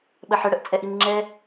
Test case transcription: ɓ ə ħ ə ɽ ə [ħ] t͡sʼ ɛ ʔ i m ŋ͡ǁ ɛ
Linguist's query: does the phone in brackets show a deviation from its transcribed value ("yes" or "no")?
yes